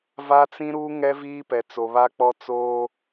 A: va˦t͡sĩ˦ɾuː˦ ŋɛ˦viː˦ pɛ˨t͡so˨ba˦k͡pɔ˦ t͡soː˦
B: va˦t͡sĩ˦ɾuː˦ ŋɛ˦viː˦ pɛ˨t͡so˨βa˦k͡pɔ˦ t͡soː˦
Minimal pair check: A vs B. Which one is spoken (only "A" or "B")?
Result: B